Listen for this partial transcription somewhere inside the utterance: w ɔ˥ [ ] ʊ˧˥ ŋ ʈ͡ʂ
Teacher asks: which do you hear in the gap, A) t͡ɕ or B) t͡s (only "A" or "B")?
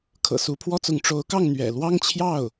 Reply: B